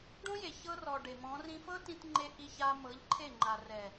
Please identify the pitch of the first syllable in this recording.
high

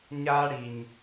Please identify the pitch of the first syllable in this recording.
high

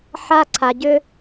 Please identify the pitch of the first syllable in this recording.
high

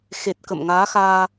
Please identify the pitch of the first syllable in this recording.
low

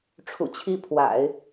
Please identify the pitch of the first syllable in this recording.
low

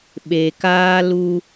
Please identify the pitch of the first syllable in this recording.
low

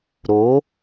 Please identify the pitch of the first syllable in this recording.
rising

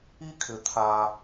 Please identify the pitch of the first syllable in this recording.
high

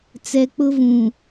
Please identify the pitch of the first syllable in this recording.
low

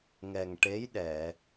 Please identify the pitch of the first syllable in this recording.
low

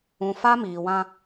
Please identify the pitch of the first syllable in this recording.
low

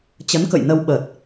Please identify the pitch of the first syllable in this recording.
rising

